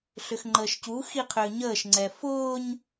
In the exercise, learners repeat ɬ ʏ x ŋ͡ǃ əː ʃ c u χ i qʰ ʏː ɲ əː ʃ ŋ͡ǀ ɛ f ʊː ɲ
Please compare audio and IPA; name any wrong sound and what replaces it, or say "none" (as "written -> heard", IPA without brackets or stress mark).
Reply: χ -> x